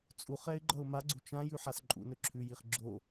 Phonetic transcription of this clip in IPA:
t͡sʼ u χ ɛ ɪ̯ ɡ͡ǃ ʌ ʊ̯ m a ɡ͡ǀ u t͡ʃ ã j ʉ ħ a s ǃʼ ṵ n ɵ ǁʰ ʉ j i χ ɡ͡ǁ o

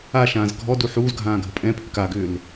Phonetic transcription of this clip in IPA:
a ʃ ãː z ɡʱ ɔ d u ħ uː z ɡʱ ãː ɡʱ ə pʼ ɛ̃ pʰ ʏ k a ɡ ʏː l

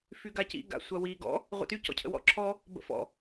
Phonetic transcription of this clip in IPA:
f y ɡ a c ḭ ɡ a̰ sʷ ɐ w i ɡ ɔ̰ | ʁʷ ə̰ t y c ɔ̰ cʰ ə̰ w ɔ̰ ǁʰ ɔ | b ə̰ f ɔ̰

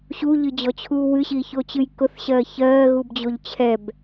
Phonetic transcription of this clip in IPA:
ɕ u ʎ ɨ d͡ʑ ɔ t͡ɕʰ uː w ɨ ɕ iː ç o t͡ɕ ɨ j k ʊ θ ɕ ɜː ç ɜː ɣ u b d͡ʑ o ʎ t͡ɕʰ ɛ b

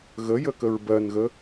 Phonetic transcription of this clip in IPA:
ɣ ə j ə k ə ɹ b ɜ n ɣ ə

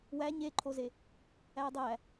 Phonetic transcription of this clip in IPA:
w æ ɲ e ǃʰ o z e | æ dˤ æ

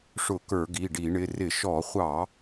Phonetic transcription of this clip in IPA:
ʂ ʊ˧˩˧ k ə˞˧˩˧ ɡ i˩˧˩ ɖ i˧˩˧ ɳ ɪ˩˧˩ r ɪ˧˩˧ ʃ ɔ˧˩˧ χʷ ɑ˧˩˧

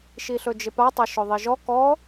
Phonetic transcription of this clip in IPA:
ʃ i ɬ ɵ d͡ʒ ɪ p a tˤ ɐ ʃ ɵ ðˤ i ʒ ɔ k ɔ

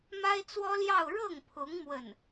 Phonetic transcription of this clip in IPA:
m a˥ ɪ̯ t͡s w ɔ˥ l j ɑ˥˧ ʊ̯ ɻ ɤ˥˩ ŋ pʰ ʊ˧˥ ŋ m w ə˥˩ n

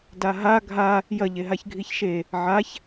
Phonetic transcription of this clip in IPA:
d a ɦ a ɡʱ a | j ɐ ʎ e ɦ a ç ɡʱ i ç ʃ e | ʕ a ç

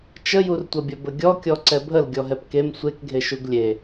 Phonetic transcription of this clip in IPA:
t͡ʃ ə j u r tʷ ɐ bʲ ɐ b ə ɡʲ ɔ kʲ ɔ ǀ ɛ bʱ ə l ɡʲ ɔ ɦ ɛ p k e m sʷ e k ɡʱ e ʃ u ɡ lʲ e

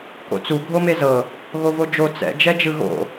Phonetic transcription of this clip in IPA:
k o̰ t͡s u ɡʱ o m e z ɤ | ɣ o v o d͡ʒ o t͡s ɛ̰ d͡ʒ ɛ d͡ʒ ɯ ɣ o̰

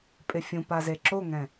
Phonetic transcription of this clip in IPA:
pʼ ɪ fʲ ũ p a z e ǁ o ŋ ɛ̃

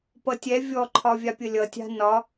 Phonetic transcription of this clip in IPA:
p ʌ tʲ ɛ vʲ ɔ ǃʰ ɒ vʲ a pʲ ə lʲ ʌ tʲ a̤ n ɒ

